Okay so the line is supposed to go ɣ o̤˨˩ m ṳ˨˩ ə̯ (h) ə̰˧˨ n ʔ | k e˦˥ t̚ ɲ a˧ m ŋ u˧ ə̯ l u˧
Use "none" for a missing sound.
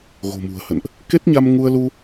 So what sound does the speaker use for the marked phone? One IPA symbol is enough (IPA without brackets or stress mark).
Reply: h